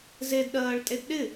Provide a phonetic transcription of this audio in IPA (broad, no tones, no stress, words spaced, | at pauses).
zedɗɜːɭtʼed ɗɪ